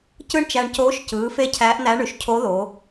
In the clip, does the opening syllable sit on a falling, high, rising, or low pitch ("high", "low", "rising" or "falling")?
high